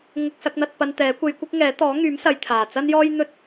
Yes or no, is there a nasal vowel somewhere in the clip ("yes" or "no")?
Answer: no